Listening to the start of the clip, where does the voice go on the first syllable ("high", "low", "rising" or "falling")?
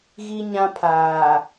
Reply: high